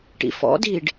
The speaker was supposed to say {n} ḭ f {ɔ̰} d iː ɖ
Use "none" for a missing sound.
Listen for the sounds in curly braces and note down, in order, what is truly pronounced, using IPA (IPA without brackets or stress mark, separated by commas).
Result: ʈ, ɔ̰